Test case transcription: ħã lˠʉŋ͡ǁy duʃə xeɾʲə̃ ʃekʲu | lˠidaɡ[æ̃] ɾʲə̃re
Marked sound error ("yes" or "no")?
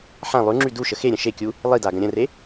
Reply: yes